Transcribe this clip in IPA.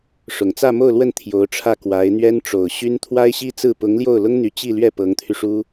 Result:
ʂ ʊ˨˩ ŋ t͡s ä˥˧ m o˥˧ ʊ̯ l w ə˥˩ n t̪ʰ j o˧˥ ʊ̯ ʈ͡ʂʰ ä˥˩ k w a˧˥ ɪ̯ n̪ ɥ ɛ˥ n ʈ͡ʂ o˨˩ ʊ̯ ɕ y˥ n t̪ʰ w a˥ ɪ̯ ɕ i˥ t͡s ɹ̩˥˩ p ʊ˧˥ ŋ l j o˥˩ ʊ̯ l ʊ˥ ŋ n̪ y˧˥ t͡ɕ i˥˧ l ɥ ɛ˥˩ p ɤ˧˥ ŋ t̪ʰ y˧ ʂ u˥

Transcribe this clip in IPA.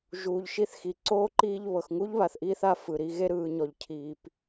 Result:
ʒ uː˨ ʎ ʃ i˦ θ x i˨ ǀ oː˥ ǃ iː˦ ʎ β ɤ˩ x ŋ u˥ ʎ β a˨ θ ʔ iː˦ θ a˦ f ɯ˩ ɾ i˦ ɣ e˥ ɾ ɯː˨ ɲ ɔ˩ ʎ cʰ iː˩ p

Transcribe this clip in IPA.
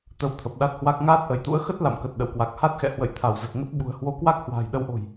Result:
t̪ ə˧ w t̪ʰ ə˨˩ p̚ ɗ a˦˥ t̚ h w a˦˥ k̚ ŋ aː˦˥ t̚ ʔ ə˧˩ j t̪ ṵ˧˥ ə̯ x ə˦˥ t̚ l a̰˧˨ m k ə˨˩ t̚ ɗ ə̰˧˨ w k w a˨˩ k̚ h a˦˥ t̚ x ɛ̰˧˨ h w ə̰˧˨ j t̪ʰ a˧˩ w z ə˨˩ t̚ ŋ ə˦˥ t̚ ɓ ṳ˨˩ ə̯ h w o˨˦ k w a˦˥ k̚ h w a̤ː˨˩ j ɗ ə˧ w ʔ o̤˨˩ j

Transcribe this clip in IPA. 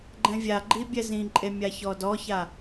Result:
ɡ͡ǃ ɛ̃ vʲ a ɡ͡ǃ i bʲ ɛ z ĩ ǃʼ e mʲ a ç ɔ d ɔ ç a

